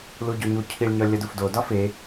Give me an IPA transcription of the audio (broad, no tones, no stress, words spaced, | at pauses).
luɟoɲu cʰiɭ ɲɒlʲɒdufdo dɒfe